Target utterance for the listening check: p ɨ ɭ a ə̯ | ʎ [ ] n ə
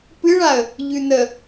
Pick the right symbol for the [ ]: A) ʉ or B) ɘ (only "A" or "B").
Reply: A